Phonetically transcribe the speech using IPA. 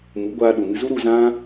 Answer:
mu˨˦ɡʷaː˧ ɗu˨mɨ˧zu˦ɾu˧ zã˦

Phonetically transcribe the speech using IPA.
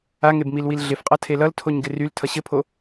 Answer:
aŋebmilwil ɮɪfqʼʌ tʰelʌltʰoɲ ɡɪryl tʰʌɕɘpʰo

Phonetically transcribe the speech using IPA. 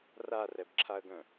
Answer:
rarɛbǁʰaə̯ɡœ̃

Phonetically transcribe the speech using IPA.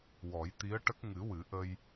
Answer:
wɔ˨˩˦jt̪i˧˥ə̯ʈə˦˥k̚ ŋɨ˨˩˦wɨ˨˩˦ʔə˧j

